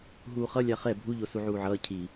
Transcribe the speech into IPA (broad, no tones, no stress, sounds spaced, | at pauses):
ɦ uː χ ʌ lʲ a χ ɛ bʱ u ʎ o s u ʕ uː ʕ ʌː cʰ i